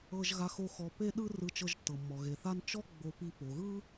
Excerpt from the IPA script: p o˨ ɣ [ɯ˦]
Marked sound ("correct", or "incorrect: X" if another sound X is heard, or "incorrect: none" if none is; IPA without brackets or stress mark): correct